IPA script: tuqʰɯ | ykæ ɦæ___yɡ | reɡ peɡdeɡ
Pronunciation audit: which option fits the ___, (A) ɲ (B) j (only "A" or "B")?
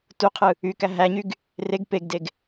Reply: A